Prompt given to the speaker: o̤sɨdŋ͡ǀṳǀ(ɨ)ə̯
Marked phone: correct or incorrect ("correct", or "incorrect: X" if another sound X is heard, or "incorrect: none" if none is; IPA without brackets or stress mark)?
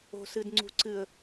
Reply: correct